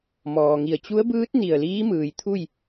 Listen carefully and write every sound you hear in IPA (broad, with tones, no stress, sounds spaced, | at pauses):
m ɔː˩ ŋ i˧˩ ə̯ t͡ɕ u˧˥ ə̯ b ɯː˧˥ t̚ n i˧˩ ə̯ l iː˧˥ m ɯː˩ j t̪ʰ u˥˨ j